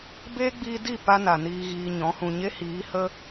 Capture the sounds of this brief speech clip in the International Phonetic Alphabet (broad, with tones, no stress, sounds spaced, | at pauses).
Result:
b eː˦ ɡ͡b iː˧ d i˦˨ p a˦ n a˨ n iː˧ ɣ iː˧ ɲ ɔ̃˨˦ h ũ˨ ɲ e˦ h iː˨˦ h ə˦